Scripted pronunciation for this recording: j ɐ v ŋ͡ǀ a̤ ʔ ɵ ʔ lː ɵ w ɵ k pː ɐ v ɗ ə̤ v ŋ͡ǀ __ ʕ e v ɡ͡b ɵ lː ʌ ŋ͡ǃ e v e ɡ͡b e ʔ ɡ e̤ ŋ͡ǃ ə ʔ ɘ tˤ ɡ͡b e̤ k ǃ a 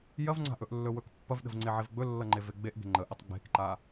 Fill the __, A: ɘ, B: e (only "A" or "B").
B